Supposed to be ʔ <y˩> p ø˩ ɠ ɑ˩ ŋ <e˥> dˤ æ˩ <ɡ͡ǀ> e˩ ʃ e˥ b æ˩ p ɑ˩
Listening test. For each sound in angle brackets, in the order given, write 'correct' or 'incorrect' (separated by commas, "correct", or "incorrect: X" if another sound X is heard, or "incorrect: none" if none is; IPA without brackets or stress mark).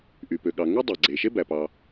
correct, correct, correct